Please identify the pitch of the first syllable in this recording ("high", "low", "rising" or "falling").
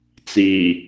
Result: low